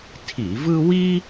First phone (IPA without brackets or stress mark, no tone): tʰ